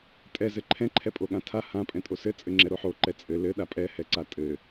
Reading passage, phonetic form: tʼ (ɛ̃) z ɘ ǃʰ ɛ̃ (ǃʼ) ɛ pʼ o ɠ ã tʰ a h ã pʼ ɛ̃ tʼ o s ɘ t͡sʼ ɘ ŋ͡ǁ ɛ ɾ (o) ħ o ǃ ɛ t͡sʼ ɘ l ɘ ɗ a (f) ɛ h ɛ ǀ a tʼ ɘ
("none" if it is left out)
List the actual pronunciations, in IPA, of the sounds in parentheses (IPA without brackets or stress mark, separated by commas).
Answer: ɛ, ǃʰ, o, pʼ